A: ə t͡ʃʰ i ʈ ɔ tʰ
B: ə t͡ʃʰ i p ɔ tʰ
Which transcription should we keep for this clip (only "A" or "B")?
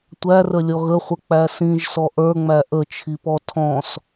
B